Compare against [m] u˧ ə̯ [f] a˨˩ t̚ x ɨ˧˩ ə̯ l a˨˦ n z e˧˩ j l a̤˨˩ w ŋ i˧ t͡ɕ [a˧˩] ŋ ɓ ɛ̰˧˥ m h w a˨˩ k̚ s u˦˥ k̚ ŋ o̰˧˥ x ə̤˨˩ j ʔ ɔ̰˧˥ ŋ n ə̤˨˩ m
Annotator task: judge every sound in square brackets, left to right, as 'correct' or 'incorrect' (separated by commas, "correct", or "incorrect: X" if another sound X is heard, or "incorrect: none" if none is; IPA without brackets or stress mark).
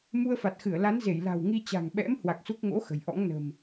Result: correct, correct, incorrect: a̤˨˩